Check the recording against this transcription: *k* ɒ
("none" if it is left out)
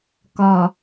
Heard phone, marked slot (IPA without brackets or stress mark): k